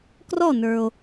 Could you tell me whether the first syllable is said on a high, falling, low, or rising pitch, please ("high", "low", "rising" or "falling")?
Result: falling